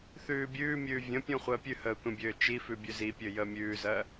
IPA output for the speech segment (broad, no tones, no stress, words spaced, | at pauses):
θʉːbʲʉːmʲʉː vʲə̃pʲũ χʷəːpʲʉhəː tʷə̃bʲøː t͡ʃifʉ bʲøzipʲø jəːmʲʉːzɜ